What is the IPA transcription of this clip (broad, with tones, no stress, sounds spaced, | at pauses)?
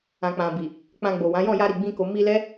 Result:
ã˨ k͡p ã˨ b i˨ | k͡p ã˧ ɡ͡b o˨ w ã˨˦ j ɔ̃˦˨ j a˧ ɾ i˨ ɡ͡b ĩ˧ k o˨ m i˧ l ɛ˦